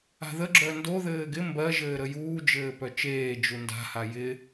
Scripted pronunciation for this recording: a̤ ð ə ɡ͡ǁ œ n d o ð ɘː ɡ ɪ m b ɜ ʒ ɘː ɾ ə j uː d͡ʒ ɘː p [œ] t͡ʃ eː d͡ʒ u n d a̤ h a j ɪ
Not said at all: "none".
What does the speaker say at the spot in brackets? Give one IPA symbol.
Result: œ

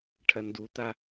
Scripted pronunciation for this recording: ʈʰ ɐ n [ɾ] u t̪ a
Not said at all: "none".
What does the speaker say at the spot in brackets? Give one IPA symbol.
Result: d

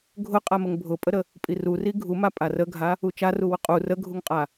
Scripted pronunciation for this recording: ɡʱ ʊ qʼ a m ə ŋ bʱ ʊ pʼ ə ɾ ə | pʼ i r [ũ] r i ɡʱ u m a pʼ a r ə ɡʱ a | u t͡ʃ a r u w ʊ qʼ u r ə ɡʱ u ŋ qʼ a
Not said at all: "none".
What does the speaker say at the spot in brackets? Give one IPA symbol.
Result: u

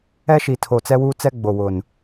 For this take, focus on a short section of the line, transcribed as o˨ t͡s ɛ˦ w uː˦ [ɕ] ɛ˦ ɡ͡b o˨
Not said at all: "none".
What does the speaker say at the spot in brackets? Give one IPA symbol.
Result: t͡s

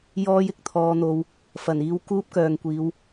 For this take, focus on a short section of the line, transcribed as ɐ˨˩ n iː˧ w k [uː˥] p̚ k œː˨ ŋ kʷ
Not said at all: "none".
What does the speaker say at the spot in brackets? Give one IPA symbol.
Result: uː˥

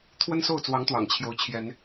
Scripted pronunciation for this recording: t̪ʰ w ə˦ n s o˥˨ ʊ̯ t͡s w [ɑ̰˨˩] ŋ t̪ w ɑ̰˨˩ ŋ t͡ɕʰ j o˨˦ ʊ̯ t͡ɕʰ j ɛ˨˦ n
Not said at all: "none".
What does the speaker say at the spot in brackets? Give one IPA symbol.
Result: ɑ˨˦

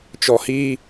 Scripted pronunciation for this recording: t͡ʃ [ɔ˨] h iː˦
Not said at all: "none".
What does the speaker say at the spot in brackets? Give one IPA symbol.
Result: ɔ˨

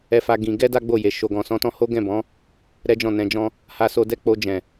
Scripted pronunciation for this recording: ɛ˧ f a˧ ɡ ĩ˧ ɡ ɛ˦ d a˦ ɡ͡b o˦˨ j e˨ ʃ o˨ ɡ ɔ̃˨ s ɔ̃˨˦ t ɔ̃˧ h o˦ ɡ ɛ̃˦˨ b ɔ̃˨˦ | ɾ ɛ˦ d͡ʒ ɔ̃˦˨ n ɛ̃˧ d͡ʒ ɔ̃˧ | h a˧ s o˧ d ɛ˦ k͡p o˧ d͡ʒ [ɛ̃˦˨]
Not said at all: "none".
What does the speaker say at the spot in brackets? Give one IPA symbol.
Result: ɛ̃˨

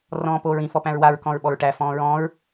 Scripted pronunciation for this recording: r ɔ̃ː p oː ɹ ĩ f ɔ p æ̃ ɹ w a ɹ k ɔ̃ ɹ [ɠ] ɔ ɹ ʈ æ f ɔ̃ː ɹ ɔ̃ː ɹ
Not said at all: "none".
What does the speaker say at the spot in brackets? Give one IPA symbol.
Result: ɓ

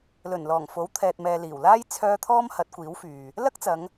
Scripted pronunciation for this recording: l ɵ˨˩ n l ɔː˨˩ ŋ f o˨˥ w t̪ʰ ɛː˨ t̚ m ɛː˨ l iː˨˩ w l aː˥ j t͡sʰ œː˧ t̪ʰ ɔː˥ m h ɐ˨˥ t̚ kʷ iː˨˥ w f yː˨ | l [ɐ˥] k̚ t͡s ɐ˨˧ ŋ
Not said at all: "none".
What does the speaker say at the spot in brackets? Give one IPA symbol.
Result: ɐ˥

